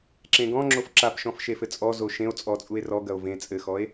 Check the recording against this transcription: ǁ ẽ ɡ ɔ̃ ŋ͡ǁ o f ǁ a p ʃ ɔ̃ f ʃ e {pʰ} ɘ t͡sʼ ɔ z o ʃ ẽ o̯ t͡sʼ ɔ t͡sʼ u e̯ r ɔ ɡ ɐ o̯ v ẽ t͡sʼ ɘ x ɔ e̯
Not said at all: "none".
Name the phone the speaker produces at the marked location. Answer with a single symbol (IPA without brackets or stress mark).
f